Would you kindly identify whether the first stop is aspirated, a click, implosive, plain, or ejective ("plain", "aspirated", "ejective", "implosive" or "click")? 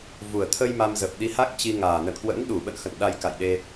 aspirated